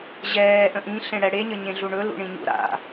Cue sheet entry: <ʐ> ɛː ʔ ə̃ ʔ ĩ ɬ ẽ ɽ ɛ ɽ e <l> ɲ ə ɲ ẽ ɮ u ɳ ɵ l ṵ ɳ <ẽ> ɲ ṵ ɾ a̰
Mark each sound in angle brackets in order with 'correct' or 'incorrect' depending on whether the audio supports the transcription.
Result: incorrect, incorrect, incorrect

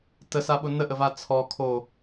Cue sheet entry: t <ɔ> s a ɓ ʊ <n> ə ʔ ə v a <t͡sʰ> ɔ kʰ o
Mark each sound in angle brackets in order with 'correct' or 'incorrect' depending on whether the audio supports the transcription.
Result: incorrect, correct, correct

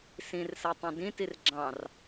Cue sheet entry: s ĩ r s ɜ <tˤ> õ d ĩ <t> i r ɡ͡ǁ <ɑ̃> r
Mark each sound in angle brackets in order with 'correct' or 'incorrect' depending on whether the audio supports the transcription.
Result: correct, correct, correct

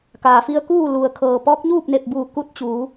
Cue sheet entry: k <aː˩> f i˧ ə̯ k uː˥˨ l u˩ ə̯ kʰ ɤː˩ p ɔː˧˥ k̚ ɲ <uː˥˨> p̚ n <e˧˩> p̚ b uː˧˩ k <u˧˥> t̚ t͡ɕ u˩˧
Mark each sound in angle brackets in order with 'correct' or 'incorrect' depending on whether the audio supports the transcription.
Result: correct, correct, correct, correct

